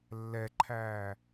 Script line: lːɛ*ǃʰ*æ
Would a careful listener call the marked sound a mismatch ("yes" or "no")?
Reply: no